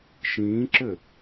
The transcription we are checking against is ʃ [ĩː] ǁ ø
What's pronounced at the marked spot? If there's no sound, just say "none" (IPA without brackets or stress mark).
ĩː